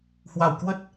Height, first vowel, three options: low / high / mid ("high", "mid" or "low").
low